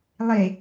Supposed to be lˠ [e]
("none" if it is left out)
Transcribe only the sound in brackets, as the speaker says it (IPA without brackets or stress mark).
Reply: e